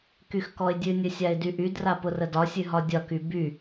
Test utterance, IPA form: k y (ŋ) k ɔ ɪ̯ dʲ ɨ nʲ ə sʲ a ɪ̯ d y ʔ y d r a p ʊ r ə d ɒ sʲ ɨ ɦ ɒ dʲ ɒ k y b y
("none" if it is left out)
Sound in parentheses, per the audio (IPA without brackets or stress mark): x